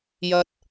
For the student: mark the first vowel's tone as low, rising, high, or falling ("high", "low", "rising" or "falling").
high